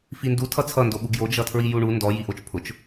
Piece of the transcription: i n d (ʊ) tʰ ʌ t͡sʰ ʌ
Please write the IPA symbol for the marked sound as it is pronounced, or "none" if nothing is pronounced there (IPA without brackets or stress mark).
u